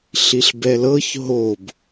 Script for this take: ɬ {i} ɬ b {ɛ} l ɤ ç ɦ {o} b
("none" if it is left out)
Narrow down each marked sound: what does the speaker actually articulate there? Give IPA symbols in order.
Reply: i, ɛ, o

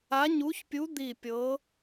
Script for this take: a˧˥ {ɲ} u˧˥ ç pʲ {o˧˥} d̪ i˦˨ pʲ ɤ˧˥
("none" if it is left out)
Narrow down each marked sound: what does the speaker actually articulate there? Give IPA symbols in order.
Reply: ɲ, u˧˥

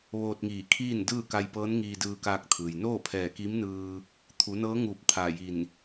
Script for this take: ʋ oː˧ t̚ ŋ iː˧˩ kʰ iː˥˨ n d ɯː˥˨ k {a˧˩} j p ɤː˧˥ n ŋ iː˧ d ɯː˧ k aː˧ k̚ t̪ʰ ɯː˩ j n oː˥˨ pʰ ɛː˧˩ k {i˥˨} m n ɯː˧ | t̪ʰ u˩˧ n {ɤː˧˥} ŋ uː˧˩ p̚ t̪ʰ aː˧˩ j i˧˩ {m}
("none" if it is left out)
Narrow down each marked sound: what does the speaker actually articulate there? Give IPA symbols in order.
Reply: a˧, i˧˥, ɤː˧˥, n

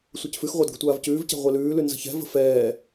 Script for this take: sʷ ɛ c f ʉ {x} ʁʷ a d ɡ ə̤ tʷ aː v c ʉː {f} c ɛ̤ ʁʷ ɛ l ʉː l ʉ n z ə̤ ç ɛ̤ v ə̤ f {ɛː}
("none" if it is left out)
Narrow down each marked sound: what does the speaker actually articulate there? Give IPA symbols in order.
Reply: x, v, ɛː

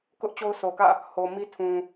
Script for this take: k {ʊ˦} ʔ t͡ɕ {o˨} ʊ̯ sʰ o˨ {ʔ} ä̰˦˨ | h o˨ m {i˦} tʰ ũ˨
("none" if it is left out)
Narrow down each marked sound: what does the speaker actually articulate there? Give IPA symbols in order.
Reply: ʊ˦, o˦, k, i˦

